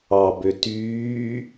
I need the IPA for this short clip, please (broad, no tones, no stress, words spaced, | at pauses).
ɑbø tyː